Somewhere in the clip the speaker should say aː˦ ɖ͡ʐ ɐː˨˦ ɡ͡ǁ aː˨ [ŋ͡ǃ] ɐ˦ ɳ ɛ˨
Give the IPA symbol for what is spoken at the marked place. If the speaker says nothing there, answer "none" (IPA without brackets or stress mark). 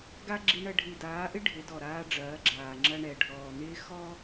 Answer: ŋ͡ǁ